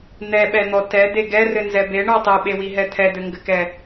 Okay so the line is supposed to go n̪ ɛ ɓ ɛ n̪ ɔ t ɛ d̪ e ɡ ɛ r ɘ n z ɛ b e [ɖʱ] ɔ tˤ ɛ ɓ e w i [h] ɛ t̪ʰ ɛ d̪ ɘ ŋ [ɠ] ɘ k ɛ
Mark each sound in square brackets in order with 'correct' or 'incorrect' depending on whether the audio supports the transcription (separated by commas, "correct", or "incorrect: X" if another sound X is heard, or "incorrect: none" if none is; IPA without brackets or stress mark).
incorrect: ɳ, incorrect: ɦ, incorrect: ɡ